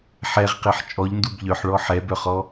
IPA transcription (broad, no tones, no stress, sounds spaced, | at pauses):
ħ ɛ ʁ q e ħ t͡ʃʼ ɔ ʎ n d u b ʎ œ ħ ɭ ɔ ħ ɛ b œ χ ɔ